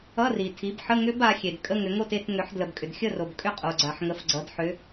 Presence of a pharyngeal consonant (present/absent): present